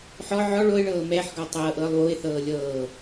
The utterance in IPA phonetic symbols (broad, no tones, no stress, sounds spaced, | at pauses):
ħ ɔ ʕ ɔ ɭ o ɪ̯ ɭ ɤː m ɛ ħ ɡ ɔ tˤ ɤː ʔ ɤː lˠ w o ɪ̯ θ ɤː lʲ ɤː